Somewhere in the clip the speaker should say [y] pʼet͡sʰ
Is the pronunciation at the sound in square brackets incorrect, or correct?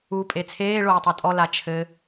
incorrect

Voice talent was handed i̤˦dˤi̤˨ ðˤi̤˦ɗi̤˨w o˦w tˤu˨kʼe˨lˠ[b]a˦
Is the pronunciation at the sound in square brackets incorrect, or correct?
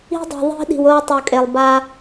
correct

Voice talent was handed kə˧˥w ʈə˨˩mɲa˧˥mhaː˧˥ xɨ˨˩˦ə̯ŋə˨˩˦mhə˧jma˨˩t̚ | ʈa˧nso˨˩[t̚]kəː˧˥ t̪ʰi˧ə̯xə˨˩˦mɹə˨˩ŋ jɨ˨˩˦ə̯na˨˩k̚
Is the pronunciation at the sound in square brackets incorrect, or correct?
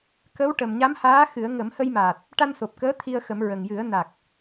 incorrect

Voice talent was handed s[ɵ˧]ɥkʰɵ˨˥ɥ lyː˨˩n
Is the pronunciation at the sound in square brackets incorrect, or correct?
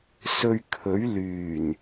correct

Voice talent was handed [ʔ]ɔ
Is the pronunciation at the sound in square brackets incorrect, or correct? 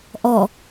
correct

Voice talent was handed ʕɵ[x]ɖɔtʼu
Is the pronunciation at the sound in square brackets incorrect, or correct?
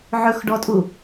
correct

